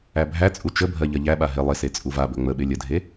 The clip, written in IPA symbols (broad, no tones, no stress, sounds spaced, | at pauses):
æ bʱ æ t͡sʼ u t͡ʃ ə bʱ ɜ ʎ ɜ ʎ æ ɓ a ɦ ɪ lˠ ɪ s e t͡sʼ u v a b ɵ ŋ͡m ə ɓ ɪ lʲ ə dʱ e